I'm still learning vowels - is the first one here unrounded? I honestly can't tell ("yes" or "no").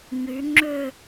no